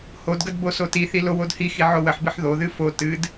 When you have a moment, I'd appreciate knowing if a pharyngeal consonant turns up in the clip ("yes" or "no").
yes